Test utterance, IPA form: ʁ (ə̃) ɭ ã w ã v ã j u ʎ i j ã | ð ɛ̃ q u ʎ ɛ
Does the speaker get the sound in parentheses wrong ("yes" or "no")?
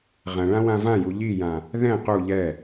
yes